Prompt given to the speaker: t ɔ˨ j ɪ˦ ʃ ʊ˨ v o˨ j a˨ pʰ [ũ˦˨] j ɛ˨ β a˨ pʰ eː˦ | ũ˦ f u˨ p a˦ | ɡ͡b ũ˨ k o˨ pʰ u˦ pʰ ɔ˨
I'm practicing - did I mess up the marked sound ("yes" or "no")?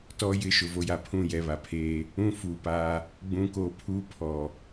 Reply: no